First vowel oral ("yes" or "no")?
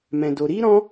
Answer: no